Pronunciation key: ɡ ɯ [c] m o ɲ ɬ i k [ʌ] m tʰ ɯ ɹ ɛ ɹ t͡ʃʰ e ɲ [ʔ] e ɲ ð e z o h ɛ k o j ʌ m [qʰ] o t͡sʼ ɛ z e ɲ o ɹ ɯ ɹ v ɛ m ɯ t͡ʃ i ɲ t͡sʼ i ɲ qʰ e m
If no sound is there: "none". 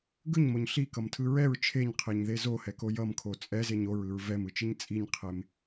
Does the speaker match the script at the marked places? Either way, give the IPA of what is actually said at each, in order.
ɲ, ʌ, qʰ, kʰ

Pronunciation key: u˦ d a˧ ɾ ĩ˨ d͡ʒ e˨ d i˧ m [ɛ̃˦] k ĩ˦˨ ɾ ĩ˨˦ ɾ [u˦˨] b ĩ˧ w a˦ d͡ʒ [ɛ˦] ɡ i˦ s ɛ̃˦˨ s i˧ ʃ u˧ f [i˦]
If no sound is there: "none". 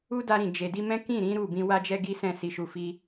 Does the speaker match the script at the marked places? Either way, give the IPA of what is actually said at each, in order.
ɛ̃˦, u˦˨, ɛ˦, i˦

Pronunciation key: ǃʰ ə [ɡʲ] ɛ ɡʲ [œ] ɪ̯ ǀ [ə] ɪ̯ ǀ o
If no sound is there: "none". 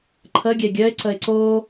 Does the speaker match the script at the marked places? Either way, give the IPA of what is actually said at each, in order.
ɡʲ, œ, ə

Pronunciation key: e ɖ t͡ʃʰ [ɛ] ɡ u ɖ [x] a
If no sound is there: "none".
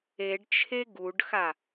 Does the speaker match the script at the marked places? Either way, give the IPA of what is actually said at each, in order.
e, x

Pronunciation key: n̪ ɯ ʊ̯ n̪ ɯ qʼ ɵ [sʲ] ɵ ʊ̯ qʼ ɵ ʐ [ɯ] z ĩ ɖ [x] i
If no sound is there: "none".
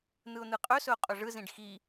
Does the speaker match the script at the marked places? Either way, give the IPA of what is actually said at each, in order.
s, ɯ, x

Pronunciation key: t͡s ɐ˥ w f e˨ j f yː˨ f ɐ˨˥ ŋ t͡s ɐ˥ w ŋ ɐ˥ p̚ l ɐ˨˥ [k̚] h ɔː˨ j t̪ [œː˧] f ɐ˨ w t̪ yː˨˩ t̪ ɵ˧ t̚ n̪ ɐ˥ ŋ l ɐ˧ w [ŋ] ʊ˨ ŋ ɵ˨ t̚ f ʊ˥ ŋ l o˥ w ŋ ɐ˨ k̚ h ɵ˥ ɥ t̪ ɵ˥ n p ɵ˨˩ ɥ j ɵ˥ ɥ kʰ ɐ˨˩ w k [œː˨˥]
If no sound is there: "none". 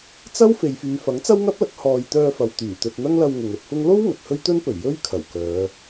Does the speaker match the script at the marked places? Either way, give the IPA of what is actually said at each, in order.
k̚, œː˧, ŋ, œː˨˧

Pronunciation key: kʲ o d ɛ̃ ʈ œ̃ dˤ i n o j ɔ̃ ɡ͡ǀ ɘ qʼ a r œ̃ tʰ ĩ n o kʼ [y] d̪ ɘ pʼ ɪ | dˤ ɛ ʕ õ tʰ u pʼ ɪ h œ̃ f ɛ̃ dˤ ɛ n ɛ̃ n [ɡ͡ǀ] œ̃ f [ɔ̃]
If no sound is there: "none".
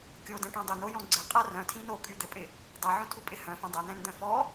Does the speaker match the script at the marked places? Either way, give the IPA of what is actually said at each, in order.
y, d̪, ɔ

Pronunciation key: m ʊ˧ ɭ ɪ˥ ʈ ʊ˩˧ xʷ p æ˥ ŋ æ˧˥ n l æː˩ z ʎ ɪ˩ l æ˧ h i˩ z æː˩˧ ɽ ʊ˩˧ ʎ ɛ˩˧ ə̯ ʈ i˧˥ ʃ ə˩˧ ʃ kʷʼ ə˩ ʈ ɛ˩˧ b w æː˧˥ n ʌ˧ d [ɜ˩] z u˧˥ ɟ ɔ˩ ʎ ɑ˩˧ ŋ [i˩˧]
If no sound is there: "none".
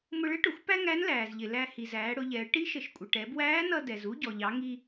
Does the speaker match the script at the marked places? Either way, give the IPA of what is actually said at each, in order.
ɛ˩, i˧

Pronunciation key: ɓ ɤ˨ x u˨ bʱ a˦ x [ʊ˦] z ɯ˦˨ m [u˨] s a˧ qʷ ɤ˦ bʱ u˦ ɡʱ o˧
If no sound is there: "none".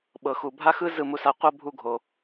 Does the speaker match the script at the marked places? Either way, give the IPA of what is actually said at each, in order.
ɯ˦, u˧

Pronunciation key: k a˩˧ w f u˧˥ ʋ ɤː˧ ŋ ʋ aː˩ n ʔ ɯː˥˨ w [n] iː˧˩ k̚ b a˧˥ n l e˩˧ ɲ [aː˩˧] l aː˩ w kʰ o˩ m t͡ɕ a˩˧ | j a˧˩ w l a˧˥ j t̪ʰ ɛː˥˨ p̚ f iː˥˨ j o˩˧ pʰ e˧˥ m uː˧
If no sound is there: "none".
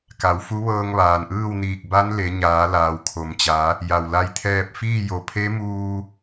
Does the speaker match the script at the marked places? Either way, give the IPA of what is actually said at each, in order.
n, aː˩˧

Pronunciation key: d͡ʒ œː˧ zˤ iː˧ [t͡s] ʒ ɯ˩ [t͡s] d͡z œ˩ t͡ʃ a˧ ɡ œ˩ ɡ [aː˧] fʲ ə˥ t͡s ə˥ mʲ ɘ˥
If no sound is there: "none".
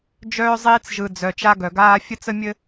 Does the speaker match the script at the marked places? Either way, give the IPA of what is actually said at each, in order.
t͡s, none, aː˧

